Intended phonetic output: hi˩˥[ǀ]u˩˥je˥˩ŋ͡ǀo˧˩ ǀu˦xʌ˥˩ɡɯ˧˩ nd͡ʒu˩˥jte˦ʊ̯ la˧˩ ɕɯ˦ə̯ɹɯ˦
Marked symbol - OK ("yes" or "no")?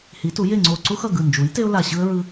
no